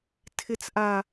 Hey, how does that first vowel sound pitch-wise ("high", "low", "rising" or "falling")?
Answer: high